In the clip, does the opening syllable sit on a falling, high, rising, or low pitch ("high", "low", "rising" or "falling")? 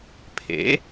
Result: rising